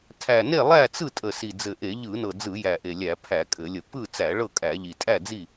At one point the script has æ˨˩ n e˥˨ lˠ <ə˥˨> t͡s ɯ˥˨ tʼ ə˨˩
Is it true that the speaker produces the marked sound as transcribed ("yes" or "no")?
no